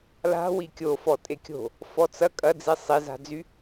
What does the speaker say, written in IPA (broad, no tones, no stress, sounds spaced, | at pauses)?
l a̤ w i kʲ o f ɔ tʼ e kʲ o̤ | f ɔ t͡s ɐ kʼ ɐ d͡z i sˤ i z a̤ d͡z y